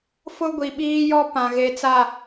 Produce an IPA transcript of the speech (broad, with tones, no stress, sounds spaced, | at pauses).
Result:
f ʊ˦ ɡʷ i˨ ɓ iː˦ j ɔ˦ p ã˨ ɣ e˨ t͡s a˨